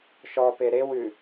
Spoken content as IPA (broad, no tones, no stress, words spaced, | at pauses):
ʃɔpe ɾewʉ